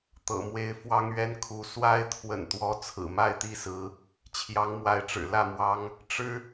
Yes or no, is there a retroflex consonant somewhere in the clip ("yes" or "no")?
yes